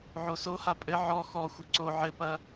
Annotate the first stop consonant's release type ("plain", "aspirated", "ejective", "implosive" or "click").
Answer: ejective